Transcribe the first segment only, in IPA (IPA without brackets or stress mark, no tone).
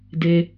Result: d